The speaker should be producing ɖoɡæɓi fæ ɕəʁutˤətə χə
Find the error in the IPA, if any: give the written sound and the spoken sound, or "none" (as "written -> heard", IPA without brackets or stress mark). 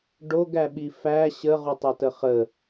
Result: none